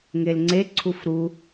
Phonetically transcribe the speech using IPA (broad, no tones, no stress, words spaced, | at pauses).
ŋelŋ͡ǀe ǀʰufɾu